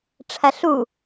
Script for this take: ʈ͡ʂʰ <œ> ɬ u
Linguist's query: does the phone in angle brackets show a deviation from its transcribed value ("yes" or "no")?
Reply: yes